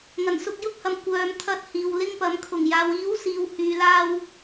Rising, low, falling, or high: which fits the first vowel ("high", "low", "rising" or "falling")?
low